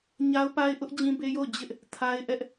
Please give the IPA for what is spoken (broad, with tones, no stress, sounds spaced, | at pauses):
ɲ a˦ ʊ̯ p a˦ ɪ̯ ʔ ʊ˦ ʔ d͡ʑ ĩ˦ b e˦ j o˦˨ ʊ̯ d͡ʑ ɪ˦ ʔ | tʰ a˦ ɪ̯ ʔ ɛ˦ ʔ